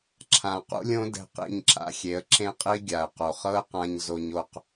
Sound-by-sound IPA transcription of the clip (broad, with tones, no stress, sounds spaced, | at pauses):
ǁʰ ã˨ q ṵ˦ lʲ õ˦ d ɛ̤˧ q ḭ˦˨ ɲ ǁ a̰˧ xʲ e˨˦ ə̯ ǁ ẽ˦ qʼ i˦ ɡʲ a˨ ə̯ q o˨ χ ɤ˦ ə̯ q ã˧ ɲ z o˧ ɲ o˧ q